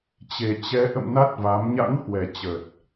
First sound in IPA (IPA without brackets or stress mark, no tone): t͡ɕ